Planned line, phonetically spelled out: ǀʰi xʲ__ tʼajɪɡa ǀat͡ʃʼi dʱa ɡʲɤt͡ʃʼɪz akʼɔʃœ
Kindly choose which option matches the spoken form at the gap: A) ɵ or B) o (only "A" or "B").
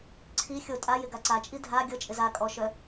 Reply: B